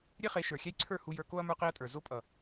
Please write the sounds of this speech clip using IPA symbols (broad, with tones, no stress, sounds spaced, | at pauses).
ɾʲ e˦ χ e˨˦ ʃ ə˞˨ xʲ ɛ˦ j ǀʰ ə˞˦˨ h u˨ j ə˞˨ k o˦ ɐ̯ m ə˞˦ q e˦ ɐ̯ tʼ ə˞˨ z o˦ pʼ ʌ˨